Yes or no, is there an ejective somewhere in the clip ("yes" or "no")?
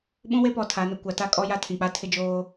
yes